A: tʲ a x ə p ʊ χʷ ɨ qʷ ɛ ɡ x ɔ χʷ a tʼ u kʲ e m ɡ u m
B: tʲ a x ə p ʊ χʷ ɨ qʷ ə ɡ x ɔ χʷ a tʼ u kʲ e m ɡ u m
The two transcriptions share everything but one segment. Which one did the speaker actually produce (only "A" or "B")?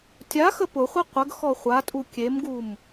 B